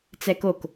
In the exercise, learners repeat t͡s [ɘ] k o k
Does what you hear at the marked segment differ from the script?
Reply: yes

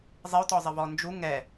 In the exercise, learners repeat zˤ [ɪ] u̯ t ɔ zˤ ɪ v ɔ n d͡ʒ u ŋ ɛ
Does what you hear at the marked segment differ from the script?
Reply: no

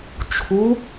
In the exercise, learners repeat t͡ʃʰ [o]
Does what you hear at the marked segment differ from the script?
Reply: yes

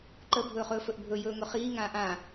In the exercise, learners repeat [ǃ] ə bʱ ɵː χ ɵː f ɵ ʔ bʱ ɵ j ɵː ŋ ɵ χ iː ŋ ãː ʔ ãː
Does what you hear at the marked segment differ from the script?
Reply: no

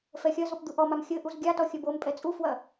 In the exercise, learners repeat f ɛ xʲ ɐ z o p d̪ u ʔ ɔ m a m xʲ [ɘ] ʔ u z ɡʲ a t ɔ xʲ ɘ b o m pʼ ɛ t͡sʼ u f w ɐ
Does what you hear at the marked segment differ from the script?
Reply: no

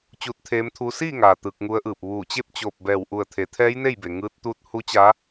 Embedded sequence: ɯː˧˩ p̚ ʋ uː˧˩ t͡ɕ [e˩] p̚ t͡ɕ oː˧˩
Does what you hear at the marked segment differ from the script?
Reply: yes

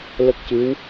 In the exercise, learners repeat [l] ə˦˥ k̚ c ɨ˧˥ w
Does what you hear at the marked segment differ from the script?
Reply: no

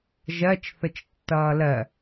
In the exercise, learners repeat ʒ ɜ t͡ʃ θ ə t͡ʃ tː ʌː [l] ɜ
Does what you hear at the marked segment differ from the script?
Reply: no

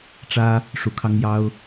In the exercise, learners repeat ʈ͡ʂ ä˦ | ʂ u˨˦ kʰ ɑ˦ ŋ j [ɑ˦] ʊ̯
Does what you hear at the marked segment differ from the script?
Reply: no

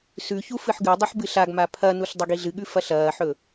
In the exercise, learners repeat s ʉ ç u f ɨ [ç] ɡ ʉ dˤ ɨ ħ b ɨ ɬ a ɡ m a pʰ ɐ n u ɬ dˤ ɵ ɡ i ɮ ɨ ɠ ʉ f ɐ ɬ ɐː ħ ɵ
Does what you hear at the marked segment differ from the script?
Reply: yes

